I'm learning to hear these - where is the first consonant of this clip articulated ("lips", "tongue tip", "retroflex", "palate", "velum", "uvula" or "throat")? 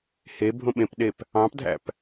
throat